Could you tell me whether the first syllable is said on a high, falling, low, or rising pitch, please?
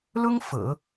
high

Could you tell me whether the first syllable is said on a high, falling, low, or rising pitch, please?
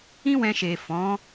high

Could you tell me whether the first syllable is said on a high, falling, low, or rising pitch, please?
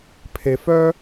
low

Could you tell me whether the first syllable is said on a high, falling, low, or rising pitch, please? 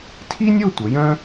high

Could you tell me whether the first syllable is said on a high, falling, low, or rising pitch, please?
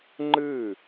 falling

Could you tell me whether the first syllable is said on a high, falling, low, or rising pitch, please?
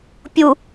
low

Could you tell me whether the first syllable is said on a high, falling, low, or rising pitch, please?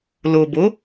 low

